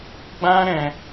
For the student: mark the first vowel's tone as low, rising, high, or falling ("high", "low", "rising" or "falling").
high